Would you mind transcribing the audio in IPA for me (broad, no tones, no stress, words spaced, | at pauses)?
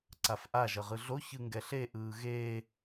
ǀafʔa ʒʌʁɯɮo çɯŋɡɛɬe ʔɯːɣeː